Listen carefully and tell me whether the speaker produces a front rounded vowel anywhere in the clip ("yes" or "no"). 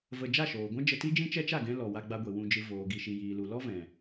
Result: no